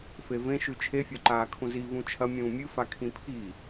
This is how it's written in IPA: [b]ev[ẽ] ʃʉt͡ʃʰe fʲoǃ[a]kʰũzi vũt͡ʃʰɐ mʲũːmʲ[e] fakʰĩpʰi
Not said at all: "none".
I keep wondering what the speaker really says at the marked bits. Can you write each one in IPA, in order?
f, ẽ, aː, ɨ

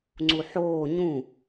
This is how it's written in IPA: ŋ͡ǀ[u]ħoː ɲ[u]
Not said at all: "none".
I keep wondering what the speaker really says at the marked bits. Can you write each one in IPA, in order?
u, ũ

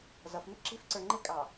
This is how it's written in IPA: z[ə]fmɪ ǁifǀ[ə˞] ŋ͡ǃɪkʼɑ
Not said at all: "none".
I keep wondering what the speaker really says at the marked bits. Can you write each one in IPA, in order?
ʌ, ə˞

